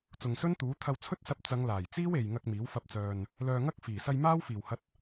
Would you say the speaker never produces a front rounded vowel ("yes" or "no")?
no